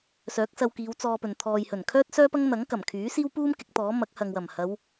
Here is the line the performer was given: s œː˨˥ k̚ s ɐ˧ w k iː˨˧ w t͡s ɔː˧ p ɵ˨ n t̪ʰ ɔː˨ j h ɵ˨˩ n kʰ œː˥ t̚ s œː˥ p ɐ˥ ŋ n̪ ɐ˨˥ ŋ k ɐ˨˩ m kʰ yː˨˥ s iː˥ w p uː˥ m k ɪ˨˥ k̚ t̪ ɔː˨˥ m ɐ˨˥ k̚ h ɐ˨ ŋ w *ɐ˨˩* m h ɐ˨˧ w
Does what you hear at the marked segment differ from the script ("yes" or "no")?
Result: no